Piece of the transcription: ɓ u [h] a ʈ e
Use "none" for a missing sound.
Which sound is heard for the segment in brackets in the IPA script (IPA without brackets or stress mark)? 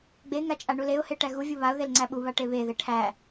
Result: β